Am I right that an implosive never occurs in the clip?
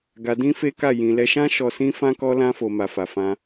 yes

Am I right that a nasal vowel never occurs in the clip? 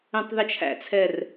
no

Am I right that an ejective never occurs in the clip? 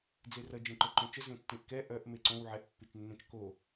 yes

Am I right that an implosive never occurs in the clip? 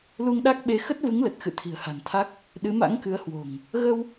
no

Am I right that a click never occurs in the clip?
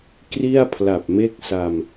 yes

